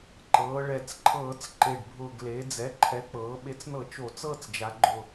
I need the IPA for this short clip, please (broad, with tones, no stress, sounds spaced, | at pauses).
ǃ ɤː˩˧ ɭ ɛ˨˩ t͡s ǃʰ ɤː˧˩˧ t͡s ǃ e˨˩ ɖ bʱ ʊː˨˩ ɡ l e˩˧ d͡z ɛ˩˥ ǃʰ ɛ˩˥ k͡p ɤː˩˧ ɓ e˩˥ t͡s n ɤ˧˩˧ t͡ʃ o˧˩˧ t͡s ɤː˦˨ t͡s d͡ʒ a˩˧ ɡ͡ǃ ʊ˨˩